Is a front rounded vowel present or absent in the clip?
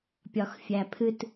absent